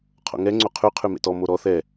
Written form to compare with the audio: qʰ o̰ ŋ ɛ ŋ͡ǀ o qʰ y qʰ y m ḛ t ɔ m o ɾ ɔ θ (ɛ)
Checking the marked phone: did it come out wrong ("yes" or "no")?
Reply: no